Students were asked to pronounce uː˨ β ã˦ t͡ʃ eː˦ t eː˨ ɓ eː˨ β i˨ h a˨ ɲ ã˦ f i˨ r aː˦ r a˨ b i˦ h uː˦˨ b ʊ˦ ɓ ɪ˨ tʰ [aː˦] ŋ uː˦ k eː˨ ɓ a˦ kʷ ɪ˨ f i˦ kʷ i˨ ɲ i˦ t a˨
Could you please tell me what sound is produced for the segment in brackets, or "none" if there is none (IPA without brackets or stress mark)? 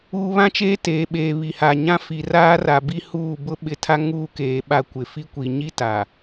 a˦